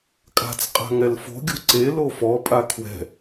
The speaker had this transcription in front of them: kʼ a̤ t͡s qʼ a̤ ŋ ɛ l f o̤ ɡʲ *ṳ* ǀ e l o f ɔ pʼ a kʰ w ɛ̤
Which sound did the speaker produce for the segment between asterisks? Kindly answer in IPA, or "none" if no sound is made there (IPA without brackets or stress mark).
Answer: ṳ